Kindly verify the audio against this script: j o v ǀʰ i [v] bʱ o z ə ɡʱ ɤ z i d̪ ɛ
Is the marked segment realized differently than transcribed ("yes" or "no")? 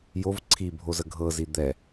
yes